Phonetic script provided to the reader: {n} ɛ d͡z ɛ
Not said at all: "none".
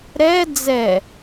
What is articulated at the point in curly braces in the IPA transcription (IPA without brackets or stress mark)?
ɾ